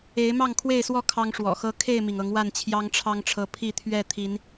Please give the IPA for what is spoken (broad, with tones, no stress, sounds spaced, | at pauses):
e˨˦ ɪ̯ m ɑ˥˨ ŋ kʰ w e˥˨ ɪ̯ s w ɔ˥˨ kʰ ɑ˦ ŋ ʂ w ɔ̰˨˩ x ɤ˦ kʰ e˥˨ ɪ̯ m i˩ ŋ ɤ˨˦ ŋ w a˥˨ n t͡ɕʰ j ɑ˦ ŋ ʈ͡ʂʰ ɑ˦ ŋ ʈ͡ʂʰ ɤ˨˦ pʰ i˥˨ t̪ʰ ɥ ɛ˥˨ t̪ʰ i˨˦ n